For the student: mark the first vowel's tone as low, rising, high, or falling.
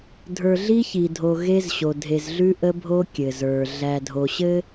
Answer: low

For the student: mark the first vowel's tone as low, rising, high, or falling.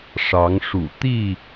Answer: rising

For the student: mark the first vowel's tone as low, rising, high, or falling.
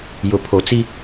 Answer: low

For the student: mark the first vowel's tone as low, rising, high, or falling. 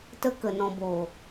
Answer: high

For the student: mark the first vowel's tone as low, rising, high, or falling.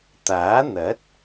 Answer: rising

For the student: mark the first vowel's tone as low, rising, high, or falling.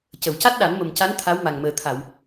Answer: low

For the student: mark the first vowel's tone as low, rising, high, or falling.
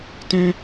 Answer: high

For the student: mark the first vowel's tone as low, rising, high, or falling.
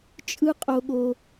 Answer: high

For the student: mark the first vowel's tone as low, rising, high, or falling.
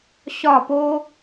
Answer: falling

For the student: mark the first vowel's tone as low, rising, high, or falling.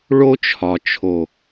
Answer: high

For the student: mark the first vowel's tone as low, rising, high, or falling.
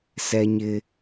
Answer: high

